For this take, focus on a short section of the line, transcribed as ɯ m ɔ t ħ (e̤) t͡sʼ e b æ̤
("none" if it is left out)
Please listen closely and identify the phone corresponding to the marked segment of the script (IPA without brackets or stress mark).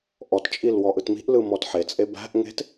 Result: e